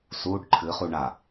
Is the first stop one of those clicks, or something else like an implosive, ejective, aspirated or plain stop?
plain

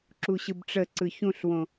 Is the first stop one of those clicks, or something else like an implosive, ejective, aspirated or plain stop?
click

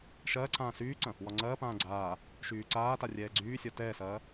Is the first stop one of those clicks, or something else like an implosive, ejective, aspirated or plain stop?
click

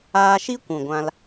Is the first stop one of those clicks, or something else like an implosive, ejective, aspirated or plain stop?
plain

